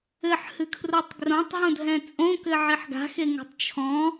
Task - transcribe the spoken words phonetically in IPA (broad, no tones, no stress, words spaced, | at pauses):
ɘħhɨkʰrotˤ ɡrõtˤɦõdʱɛ̃ t͡sʼõkɘʕiħ ɡa̤xeŋo̤tˤ t͡ʃʰɔ̃